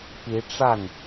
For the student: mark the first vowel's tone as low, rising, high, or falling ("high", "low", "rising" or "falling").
rising